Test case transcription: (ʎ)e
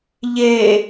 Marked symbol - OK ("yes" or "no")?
yes